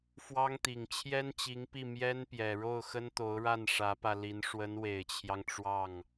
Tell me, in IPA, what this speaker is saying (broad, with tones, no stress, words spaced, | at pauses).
fwɑ˥ŋt̪i˨˩ŋ t͡ɕʰjɛ˥nt͡ɕi˧˥ŋpi˥˩ mjɛ˥npjɛ˨˩ ɻo˥˩ʊ̯xə˥nt̪o˧˥ʊ̯ɻa˥˩n ʂä˧˥pä˧li˧˥n ʂwə˧˥nwe˨˩ɪ̯t͡ɕʰjɑ˦ŋ ʈ͡ʂwɑ˥˩ŋ